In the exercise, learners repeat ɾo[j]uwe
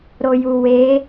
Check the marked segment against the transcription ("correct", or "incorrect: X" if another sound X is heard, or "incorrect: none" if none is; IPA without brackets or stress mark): correct